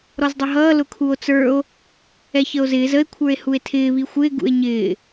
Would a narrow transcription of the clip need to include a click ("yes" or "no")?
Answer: no